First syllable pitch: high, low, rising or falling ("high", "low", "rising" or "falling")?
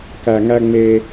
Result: low